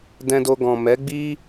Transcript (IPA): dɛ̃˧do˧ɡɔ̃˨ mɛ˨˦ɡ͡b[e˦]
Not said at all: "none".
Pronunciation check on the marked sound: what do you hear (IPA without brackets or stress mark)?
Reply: i˦